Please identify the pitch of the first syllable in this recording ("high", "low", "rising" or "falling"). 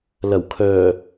low